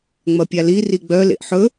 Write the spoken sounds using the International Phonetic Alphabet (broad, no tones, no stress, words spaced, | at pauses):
ŋ͡mɐpʲali riɡ͡bœ lḛʔħɵ